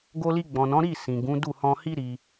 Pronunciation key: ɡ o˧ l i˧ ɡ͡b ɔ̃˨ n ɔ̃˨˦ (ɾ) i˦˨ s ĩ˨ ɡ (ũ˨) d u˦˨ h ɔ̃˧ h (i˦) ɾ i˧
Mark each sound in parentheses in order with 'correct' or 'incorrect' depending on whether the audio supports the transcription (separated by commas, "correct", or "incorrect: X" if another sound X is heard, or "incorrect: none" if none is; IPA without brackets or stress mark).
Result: correct, incorrect: ũ˨˦, correct